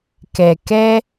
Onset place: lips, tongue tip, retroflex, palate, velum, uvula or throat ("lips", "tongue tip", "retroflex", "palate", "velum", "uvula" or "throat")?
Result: velum